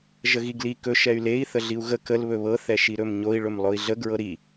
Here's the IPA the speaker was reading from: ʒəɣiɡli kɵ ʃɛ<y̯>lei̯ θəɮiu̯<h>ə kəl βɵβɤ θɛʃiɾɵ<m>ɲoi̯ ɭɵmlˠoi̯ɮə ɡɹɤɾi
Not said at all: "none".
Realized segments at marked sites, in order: y̯, ɣ, m

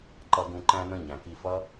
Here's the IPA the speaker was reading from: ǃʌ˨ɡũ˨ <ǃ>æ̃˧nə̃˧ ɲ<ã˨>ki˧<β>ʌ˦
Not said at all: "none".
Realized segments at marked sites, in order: ǃ, æ̃˨, f

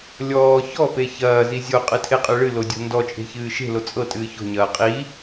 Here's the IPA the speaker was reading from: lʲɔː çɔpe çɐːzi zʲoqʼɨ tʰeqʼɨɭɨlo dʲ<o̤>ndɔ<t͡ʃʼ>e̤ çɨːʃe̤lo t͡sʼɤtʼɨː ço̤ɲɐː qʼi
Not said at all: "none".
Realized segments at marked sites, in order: o̤, t͡ʃʼ

